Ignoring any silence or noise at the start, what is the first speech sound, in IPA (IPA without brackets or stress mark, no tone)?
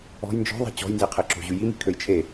ɔ̤